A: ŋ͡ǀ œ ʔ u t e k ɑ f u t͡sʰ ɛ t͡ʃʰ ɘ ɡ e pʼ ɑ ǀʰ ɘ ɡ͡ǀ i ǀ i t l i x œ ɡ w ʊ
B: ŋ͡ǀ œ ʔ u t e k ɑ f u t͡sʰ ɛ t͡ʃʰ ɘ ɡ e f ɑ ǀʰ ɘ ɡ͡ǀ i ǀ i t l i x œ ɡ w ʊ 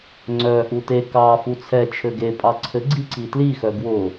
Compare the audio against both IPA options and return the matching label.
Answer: A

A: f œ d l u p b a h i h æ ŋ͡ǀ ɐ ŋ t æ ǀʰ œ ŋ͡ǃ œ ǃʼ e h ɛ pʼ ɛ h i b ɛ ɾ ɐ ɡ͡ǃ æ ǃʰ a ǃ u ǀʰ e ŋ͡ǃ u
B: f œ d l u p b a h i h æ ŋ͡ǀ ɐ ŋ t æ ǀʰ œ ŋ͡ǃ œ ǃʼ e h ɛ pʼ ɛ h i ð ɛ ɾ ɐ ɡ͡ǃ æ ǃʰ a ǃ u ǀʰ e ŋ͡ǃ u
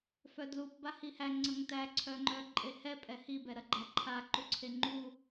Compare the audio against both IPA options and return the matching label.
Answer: A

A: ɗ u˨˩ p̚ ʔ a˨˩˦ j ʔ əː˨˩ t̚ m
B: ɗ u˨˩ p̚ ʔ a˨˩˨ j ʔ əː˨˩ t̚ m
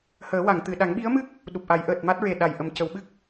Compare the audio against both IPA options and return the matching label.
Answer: A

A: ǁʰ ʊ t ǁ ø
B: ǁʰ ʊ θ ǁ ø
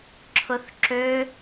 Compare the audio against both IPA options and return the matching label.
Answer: B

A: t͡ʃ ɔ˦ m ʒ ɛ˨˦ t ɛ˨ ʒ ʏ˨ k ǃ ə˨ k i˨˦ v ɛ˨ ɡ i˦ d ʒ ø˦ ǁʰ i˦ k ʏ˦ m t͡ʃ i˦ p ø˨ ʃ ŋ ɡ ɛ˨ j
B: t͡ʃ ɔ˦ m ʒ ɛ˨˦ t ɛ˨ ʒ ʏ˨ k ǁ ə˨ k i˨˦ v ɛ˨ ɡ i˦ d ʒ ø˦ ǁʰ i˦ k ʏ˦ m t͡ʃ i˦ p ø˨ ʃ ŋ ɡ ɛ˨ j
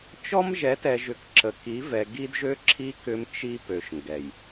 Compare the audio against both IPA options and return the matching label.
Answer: B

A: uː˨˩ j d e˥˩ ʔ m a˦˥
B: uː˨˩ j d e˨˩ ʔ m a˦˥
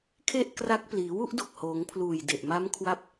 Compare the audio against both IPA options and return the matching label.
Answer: B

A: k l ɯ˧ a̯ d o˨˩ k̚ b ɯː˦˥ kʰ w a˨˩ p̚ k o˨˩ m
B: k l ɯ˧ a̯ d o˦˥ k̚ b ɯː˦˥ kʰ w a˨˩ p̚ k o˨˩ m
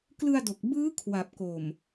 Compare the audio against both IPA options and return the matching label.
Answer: A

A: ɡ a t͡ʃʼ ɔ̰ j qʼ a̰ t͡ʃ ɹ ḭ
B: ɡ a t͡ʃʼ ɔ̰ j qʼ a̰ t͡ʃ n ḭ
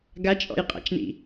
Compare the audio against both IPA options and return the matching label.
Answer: B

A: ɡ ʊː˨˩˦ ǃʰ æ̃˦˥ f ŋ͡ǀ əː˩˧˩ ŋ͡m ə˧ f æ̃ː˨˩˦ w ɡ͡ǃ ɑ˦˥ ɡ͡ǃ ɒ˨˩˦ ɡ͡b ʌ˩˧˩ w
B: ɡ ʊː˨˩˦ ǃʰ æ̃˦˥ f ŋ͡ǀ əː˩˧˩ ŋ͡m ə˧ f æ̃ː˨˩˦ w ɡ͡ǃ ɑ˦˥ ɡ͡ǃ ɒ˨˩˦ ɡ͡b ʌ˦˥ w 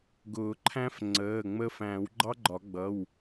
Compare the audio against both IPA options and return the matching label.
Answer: A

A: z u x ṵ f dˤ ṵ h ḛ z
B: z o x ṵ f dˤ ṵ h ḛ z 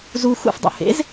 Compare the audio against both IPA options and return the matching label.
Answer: A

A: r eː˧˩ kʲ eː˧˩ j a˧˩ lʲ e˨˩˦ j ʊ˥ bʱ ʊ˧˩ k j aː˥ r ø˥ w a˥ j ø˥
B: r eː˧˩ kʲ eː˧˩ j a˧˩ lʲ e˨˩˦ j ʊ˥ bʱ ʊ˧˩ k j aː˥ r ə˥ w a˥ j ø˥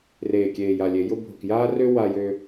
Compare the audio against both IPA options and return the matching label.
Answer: A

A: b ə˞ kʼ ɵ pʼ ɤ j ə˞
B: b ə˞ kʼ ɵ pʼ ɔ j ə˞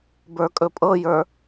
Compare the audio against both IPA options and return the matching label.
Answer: A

